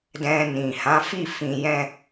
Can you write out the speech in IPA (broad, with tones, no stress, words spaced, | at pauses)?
dɛ̃˧nĩ˨ hã˨˦fi˦˨ fĩ˧jɛ̃˦